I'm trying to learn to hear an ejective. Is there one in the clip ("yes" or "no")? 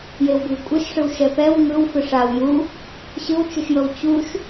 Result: yes